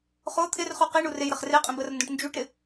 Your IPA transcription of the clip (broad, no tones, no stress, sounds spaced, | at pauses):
χ o t̪ʰ ɪ r χ u q i ɳ u r e j ɾ ə χ r e qʼ ĩ b ə r n d õ ʈ n d͡ʒ u ʈ ɾ ɪ